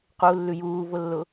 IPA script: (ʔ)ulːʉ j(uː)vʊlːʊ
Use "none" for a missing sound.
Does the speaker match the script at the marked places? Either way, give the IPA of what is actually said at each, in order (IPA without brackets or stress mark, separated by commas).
q, uː